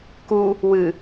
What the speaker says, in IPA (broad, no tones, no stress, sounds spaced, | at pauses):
k u | w ɨ